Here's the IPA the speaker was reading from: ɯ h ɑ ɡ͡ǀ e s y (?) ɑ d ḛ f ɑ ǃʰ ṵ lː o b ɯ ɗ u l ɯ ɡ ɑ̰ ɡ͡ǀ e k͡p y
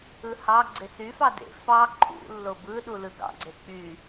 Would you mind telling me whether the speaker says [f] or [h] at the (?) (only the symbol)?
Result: f